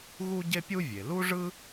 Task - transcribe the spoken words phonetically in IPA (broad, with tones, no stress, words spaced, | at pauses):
ɣu˥ɟe˥pʲu˥vʲe˩ lu˥ʐɯ˥